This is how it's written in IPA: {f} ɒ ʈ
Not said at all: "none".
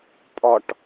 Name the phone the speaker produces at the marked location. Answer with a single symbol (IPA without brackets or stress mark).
pʼ